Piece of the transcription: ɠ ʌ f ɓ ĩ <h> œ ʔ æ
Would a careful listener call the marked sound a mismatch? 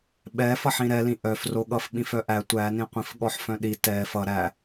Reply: yes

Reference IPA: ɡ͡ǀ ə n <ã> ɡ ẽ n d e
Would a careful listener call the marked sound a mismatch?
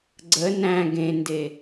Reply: yes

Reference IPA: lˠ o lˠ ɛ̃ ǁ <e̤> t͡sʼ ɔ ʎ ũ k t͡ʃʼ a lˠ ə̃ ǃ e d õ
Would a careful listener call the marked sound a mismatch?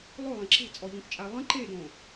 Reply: no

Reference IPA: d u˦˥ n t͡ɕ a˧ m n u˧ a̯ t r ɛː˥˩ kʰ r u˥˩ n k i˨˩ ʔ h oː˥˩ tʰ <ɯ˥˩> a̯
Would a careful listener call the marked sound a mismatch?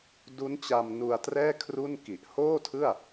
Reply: no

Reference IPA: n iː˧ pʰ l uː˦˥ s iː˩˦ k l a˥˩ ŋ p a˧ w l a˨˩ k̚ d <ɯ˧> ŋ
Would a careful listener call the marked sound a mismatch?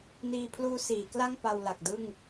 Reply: yes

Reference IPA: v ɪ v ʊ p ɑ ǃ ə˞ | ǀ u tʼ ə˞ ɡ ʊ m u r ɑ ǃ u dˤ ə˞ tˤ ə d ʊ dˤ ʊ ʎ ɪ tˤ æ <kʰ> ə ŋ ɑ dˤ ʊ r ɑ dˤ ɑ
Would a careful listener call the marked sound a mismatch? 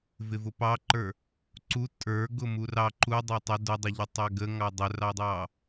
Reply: yes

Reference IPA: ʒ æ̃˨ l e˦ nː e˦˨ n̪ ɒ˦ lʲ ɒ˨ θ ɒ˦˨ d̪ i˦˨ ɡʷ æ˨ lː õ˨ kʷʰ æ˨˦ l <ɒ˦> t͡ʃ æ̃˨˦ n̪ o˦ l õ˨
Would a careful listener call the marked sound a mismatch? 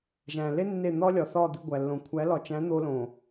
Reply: yes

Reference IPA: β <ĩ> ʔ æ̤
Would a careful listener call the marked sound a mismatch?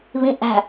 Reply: no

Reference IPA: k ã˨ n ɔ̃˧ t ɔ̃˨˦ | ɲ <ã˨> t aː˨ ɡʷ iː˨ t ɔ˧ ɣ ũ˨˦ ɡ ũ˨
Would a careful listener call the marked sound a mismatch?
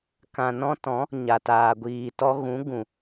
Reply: yes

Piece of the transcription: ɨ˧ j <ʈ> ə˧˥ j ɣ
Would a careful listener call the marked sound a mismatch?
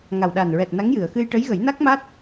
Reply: no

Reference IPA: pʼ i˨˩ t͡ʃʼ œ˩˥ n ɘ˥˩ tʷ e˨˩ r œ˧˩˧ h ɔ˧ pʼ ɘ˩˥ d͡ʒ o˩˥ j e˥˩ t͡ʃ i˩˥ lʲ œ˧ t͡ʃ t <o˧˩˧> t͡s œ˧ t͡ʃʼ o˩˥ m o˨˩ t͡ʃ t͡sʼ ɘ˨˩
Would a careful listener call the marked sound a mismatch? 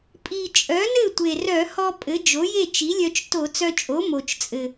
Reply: no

